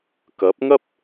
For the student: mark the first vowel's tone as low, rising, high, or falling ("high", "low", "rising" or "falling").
rising